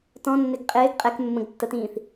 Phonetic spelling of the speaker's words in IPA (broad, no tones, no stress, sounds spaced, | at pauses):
t ɔ̃ nː ɪ ɡ qʼ ɪː ɡ qʼ ɛ k mː ə̃ ɡ tː ə t ĩː θ